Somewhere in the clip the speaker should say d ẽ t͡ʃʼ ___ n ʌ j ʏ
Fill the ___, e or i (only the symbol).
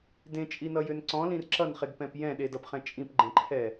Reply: i